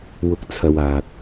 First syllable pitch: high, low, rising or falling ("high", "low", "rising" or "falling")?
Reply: rising